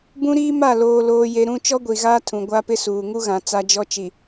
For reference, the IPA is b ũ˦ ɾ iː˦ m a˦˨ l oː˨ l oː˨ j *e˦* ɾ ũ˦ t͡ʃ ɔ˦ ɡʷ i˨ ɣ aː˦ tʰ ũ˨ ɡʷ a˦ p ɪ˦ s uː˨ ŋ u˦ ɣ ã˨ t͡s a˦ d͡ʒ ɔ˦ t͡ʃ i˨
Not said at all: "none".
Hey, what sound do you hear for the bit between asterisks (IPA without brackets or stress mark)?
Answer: e˨